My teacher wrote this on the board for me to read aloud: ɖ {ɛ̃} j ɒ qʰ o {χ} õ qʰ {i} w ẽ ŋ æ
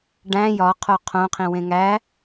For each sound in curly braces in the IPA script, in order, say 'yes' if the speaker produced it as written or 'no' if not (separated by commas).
no, no, no